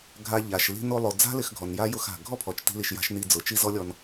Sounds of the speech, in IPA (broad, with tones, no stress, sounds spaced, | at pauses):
ɡʱ a˧ ʎ a˨ ʃ l i̤˧ n o˧ lˠ o˨ d͡z a̤˦ l ɪ˨ x ɡʱ ɔ˨ n j a˦ j ʊ˦˨ x a̤˨ ɡʱ ɔ˦ pʰ ɔ˨ t͡ʃ t i̤˦ l i˧ ʃ j a̤˦ ʃ n i˧ d͡z ʊ˨ t͡ʃ i˦ z ɔ˦ lʲ ɔ˧ n